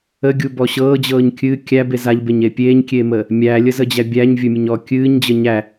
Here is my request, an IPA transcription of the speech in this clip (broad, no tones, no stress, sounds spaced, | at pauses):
ə ɡʲ u b ɔ ɕ ɤː d͡ʑ ɤː ɲ kʲ ɨ kʲ æ b e z a ʎ b e ɲ e pʲ eː ɲ kʲ eː m əː | mʲ æ lʲ ə z ə d͡ʑ æ bʲ æ ɲ vʲ ɵ mʲ ə ɲ ɔː kʲ ɨː ɲ d͡ʑ ə ɲ æ